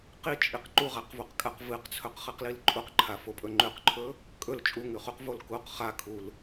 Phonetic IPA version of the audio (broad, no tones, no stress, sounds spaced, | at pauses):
q i t͡ʃʼ i q ǃ u ʁ a q v u q kʼ a q v ɨ q t͡sʰ ɵ q χ ɨ q l i l ǃʼ u q ǃʰ a f o pʼ ɵ ŋ͡ǃ ʉ q ǃʰ ɵ | kʼ ɵ l t͡ʃʼ u ŋ ʉ χ u q v o l k u q χ a kʰ u l